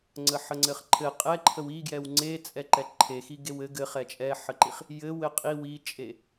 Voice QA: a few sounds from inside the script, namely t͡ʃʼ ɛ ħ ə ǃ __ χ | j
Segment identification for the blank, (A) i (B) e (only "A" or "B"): A